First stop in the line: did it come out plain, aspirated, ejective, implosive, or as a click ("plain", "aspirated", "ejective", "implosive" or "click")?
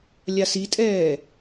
ejective